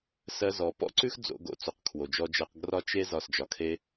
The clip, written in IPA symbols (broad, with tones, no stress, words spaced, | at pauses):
sɜ˧ zɔ˨pɔ̰˦ǀʉ˦x d͡zo̰˧ɡo̰˧ t͡so˨qkʰwo˨d͡ʒɔ˧d͡ʒɜ˧q ɡrɒ˧t͡ʃ e˦ zɒ˦˨sd͡ʒɒ˧kʰe˦